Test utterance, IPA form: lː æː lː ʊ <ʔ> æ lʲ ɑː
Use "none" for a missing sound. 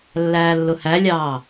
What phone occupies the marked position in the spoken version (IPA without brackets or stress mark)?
h